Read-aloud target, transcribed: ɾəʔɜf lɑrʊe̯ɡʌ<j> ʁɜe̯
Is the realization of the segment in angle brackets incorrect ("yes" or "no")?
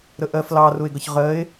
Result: yes